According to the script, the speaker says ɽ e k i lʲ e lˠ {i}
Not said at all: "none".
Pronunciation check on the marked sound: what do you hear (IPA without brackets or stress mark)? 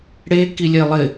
ɪ